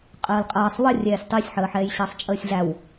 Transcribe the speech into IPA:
qʼ əː l qʼ ɐː sˤ w ə rʲ ɛː sʲ tˤ i sʲ ħ əː ħ ɛː j ɕ əː sˤ t͡ʃʼ əː sʲ ɮ æ w

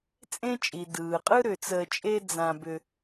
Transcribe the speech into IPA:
t͡sʼ ẽ˦ t͡ʃʼ i˩ d ɯː˩ qʼ ɯ˥ ɾ ʏ˩ t͡s əː˨ t͡ʃʼ e˦ d͡z ã˨ b ʏ˨

